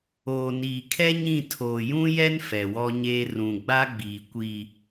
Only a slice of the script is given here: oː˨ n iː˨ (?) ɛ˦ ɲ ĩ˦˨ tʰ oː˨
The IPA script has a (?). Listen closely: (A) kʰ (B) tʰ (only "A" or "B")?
A